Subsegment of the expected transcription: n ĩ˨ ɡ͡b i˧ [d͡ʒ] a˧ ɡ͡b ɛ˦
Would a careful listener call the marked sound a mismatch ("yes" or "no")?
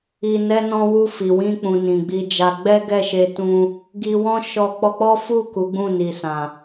no